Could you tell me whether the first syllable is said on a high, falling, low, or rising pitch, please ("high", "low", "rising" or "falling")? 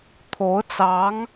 rising